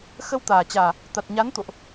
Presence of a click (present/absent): absent